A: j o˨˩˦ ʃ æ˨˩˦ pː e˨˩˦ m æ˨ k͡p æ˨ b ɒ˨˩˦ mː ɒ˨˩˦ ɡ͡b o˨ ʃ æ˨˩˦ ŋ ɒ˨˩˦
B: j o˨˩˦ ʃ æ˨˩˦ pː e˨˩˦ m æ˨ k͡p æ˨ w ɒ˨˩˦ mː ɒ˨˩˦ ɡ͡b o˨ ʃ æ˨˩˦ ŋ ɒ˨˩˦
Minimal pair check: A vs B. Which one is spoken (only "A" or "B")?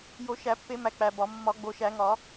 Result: A